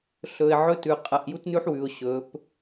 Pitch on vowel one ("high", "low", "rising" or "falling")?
low